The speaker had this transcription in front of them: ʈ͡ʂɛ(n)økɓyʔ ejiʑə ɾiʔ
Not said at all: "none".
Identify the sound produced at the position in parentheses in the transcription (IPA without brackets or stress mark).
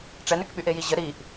n